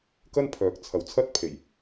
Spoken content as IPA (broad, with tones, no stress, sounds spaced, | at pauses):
k ɐ˥ n pʰ œː˨ k̚ t͡sʰ ɐ˨ w t͡sʰ ɐ˥ t̚ pʰ e˨˩ j